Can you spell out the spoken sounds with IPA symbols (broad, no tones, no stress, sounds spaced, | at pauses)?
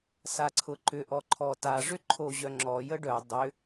s a ǀʰ ʊ ǃ ʏ ʔ ɔ ǃʰ ɔ t a ʐ ʏ ǃʰ o ʑ œ ŋ͡ǁ ɔ j ə ɖ œ dˤ ʏ